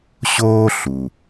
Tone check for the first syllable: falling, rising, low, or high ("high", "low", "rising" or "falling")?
high